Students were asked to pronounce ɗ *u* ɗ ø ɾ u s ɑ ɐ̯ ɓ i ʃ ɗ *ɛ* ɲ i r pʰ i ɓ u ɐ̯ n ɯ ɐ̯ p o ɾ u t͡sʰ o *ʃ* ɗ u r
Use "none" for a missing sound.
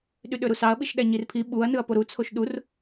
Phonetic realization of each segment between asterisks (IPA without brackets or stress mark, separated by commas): y, æ, ʃ